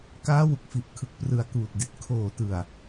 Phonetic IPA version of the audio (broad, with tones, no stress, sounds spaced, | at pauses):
k aː˦˥ w u˨˩ k̚ f i˨˩ ʔ kʰ ɯ˨˩ k̚ p r ɯ˨˩ a̯ k uː˨˩ t̚ d i˨˩ t̚ kʰ oː˨˩ t ɯ˨˩ a̯